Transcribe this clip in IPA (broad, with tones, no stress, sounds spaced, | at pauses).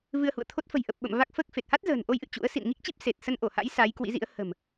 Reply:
v ɨ˧ ə̯ h ṵ˧˨ ə̯ t̪ʰ o˦˥ t̚ f ə̤˨˩ j ʔ ə˨˩ p̚ ɓ ə̰˧˨ m v a˦˥ k̚ f əː˦˥ k̚ f e˨˩ t̚ h a˦˥ t̚ z ə̤ː˨˩ n ʔ o˧ j ʔ ɨ̰˧˨ t͡ɕ ṵ˧˥ ə̯ s ḭ˧˨ n ŋ i˦˥ k̚ t͡ɕ i˦˥ p̚ s e˨˩ t̚ s ə˧ n ʔ o˧˩ h a̰˧˥ j s a˨˦ j k w ḭ˧˥ z ḭ˧˥ ə̯ h ə̤˨˩ m